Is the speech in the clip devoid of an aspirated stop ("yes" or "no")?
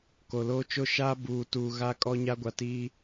yes